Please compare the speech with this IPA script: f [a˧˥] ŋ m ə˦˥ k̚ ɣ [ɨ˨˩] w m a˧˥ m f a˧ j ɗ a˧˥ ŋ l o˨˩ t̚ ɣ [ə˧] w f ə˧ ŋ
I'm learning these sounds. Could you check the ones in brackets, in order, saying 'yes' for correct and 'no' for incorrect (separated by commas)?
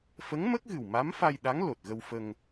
no, yes, yes